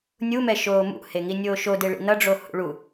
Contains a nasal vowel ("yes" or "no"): no